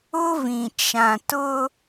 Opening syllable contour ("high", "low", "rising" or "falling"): high